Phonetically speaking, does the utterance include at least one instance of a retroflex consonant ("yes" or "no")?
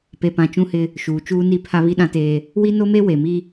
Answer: no